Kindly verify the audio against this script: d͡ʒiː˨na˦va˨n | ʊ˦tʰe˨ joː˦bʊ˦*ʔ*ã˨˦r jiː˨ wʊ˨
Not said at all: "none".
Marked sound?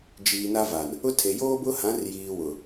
h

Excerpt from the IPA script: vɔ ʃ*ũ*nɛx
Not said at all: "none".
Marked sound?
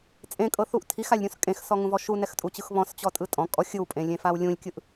u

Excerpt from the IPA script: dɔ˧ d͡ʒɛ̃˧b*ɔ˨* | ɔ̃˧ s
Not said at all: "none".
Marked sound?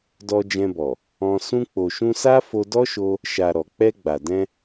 ɔ˨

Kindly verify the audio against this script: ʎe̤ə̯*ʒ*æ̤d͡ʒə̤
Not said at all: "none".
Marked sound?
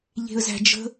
z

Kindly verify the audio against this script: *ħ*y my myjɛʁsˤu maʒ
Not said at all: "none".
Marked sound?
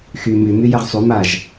x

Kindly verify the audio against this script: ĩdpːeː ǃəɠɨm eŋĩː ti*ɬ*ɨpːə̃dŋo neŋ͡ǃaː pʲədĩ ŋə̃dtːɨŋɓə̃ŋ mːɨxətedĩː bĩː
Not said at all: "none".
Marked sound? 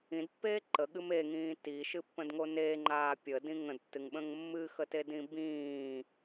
ʃ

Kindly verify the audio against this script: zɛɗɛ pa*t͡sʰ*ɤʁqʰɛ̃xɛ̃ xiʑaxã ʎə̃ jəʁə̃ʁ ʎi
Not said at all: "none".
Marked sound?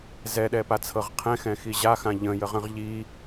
t͡sʰ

